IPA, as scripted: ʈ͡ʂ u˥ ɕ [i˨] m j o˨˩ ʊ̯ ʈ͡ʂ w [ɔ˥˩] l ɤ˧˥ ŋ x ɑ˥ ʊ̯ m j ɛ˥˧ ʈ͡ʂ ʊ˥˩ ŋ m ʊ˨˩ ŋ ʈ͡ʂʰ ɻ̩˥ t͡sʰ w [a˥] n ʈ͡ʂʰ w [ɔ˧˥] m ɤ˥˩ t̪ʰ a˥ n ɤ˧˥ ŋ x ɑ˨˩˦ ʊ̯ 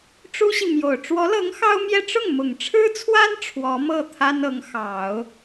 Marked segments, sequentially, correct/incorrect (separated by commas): correct, incorrect, correct, correct